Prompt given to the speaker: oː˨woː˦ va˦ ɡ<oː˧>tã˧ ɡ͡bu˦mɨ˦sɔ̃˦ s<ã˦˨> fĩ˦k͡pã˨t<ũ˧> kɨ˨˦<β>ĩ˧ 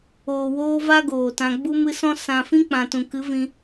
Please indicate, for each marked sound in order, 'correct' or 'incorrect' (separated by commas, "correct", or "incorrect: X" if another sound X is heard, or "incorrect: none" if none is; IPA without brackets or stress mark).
incorrect: oː˨, incorrect: ã˨, incorrect: ũ˨, incorrect: v